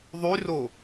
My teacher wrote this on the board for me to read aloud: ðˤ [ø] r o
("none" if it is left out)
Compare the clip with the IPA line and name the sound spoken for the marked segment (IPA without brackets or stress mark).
y